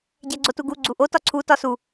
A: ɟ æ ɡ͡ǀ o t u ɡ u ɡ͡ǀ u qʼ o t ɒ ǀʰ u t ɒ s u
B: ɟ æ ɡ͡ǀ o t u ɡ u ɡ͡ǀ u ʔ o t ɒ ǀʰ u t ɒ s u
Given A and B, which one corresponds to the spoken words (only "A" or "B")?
B